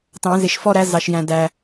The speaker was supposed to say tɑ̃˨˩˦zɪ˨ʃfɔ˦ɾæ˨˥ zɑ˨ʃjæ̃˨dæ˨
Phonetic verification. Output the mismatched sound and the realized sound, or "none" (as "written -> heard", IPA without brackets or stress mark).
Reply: none